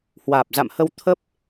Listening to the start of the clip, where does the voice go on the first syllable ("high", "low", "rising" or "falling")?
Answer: low